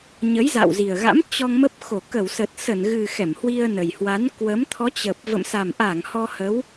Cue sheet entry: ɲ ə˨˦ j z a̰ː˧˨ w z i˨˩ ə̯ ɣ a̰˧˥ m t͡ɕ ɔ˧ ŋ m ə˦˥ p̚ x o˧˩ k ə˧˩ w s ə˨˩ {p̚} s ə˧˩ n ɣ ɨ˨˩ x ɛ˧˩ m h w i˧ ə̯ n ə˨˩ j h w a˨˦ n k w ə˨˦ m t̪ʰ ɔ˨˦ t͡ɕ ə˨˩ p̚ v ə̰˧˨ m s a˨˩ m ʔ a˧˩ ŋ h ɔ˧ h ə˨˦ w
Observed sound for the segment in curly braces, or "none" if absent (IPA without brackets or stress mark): t̚